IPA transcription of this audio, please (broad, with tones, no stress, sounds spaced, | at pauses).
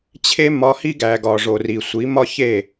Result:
t͡ɕʰ e˦ m ɒ˧ h i˦ ɡ æ˨ ɡ ɒ˨ ʐ o˨ r i˨ sʷ i˨˦ m ɒ˦ ç e˦˨